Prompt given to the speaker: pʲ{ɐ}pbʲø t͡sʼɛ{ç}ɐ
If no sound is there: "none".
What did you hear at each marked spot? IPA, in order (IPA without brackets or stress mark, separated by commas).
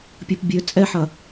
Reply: ɐ, ħ